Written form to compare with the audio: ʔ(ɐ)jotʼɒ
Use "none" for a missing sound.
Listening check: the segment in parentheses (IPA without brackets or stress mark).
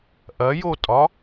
ɐ